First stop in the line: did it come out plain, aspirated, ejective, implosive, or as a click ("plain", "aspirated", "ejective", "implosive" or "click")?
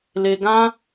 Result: plain